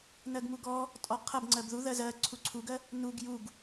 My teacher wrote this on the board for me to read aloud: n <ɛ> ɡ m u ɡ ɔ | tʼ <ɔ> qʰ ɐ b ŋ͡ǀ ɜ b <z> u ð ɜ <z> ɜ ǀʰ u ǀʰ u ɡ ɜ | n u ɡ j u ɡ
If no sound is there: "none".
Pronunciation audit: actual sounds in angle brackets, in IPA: ɜ, ɔ, ð, z

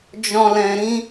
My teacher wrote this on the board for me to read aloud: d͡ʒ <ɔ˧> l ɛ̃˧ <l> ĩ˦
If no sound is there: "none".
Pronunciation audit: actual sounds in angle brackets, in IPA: ɔ̃˧, ɾ

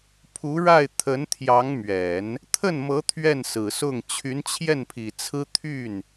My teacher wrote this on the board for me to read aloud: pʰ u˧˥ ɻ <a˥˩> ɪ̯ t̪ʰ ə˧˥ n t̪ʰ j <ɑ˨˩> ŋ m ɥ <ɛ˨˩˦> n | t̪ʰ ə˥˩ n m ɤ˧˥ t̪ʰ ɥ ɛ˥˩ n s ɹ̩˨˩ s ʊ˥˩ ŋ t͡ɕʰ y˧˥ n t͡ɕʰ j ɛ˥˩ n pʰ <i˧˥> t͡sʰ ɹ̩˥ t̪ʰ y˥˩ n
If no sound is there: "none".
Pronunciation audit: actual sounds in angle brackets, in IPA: a˥˩, ɑ˧˥, ɛ˨˩˦, i˨˩

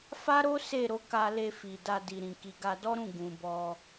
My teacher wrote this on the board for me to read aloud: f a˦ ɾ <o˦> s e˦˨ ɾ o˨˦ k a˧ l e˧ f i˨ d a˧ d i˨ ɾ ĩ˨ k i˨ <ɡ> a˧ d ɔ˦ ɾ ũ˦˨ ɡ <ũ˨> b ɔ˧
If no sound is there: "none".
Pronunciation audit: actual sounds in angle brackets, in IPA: o˦, ɡ, ũ˨

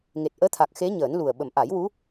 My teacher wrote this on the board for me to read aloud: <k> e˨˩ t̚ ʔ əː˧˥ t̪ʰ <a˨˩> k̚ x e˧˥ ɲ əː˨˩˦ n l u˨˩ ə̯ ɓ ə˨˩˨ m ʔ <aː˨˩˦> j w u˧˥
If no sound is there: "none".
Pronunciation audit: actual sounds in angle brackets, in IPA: ŋ, a˨˩, a˨˩˦

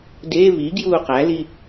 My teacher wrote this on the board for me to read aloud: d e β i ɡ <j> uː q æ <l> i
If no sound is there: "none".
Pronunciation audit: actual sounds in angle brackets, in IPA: j, l

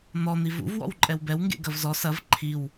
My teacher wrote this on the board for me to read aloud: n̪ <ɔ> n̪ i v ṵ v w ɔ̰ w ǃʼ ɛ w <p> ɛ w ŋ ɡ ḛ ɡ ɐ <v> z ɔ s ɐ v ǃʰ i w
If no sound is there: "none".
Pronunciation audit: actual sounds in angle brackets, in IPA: ɔ, b, v

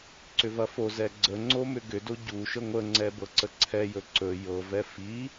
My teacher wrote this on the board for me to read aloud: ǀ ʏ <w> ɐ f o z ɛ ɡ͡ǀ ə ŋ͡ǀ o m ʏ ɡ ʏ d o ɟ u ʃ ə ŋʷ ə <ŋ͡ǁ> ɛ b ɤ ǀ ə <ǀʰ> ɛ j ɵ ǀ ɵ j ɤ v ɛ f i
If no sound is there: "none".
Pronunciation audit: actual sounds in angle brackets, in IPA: v, ŋ͡ǀ, ǀʰ

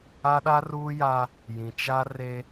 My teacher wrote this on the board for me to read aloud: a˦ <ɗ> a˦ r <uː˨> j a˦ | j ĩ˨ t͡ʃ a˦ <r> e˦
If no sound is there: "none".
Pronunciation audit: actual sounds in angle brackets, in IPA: ɗ, uː˦, r

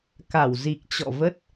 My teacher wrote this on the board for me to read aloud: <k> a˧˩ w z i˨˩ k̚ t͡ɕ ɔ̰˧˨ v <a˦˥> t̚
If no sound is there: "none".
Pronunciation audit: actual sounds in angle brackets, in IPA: k, ə˦˥

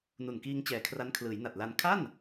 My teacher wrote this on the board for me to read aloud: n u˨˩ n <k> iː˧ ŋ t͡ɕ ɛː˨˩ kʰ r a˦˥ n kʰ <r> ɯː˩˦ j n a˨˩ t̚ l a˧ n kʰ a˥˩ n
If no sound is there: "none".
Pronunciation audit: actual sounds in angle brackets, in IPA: k, l

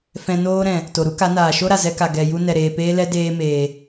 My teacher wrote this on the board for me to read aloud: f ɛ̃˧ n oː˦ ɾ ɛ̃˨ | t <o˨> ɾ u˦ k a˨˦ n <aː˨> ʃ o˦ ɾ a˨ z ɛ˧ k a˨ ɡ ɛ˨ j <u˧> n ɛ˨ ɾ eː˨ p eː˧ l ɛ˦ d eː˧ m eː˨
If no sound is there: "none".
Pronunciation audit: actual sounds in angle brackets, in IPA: o˨, aː˨, u˧

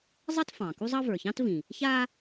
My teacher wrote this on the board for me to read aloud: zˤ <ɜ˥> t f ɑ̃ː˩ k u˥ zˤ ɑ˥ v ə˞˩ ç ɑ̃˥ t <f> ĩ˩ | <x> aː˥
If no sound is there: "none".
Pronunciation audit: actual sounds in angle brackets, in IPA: ɜ˥, v, ç

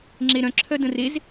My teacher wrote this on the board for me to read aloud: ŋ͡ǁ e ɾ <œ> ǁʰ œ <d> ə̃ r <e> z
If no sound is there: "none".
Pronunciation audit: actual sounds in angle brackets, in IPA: œ̃, d, e

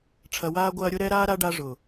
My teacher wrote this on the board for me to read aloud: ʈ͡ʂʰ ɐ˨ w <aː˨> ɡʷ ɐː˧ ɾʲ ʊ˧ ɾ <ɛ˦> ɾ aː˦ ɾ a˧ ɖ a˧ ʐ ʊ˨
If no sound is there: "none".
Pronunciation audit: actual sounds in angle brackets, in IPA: aː˧, ɛ˦

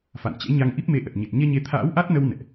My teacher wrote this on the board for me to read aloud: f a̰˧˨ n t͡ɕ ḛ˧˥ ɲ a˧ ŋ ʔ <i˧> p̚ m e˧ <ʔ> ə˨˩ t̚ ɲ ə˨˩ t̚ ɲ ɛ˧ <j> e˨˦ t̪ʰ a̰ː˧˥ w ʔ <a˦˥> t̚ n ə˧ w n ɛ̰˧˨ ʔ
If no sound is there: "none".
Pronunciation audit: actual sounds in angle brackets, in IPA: i˦˥, ʔ, ɲ, a˦˥

